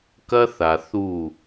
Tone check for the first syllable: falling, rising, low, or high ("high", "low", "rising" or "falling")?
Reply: high